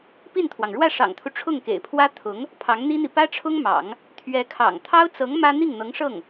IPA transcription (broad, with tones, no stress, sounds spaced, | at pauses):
p i˥˩ n t̪ʰ w ɑ˩ ŋ ɻ w ä˥˩ ʂ ɑ̰˨˩ ŋ t̪ʰ u˦ ʈ͡ʂʰ ʊ˥˩ ŋ k ḛ˨˩ ɪ̯ pʰ w ä˥ t̪ʰ ʊ˧˥ ŋ | pʰ ɑ˧˥ ŋ n̪ i˥ n̪ i˨ p ä˥ ʈ͡ʂʰ ʊ˥ ŋ m ɑ̰˨˩˦ ŋ | t̪ʰ ɥ ɛ˧˥ kʰ ɑ̰˨˩ ŋ t̪ʰ ɑ˥ ʊ̯ t͡s ɤ˧˥ ŋ m ä˥ n̪ i˥˩ ŋ n̪ ɤ˧˥ ŋ ʂ ɤ˥˩ ŋ